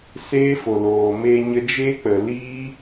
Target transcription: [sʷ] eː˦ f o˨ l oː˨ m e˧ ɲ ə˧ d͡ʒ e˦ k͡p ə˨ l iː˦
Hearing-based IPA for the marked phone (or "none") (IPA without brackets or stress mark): s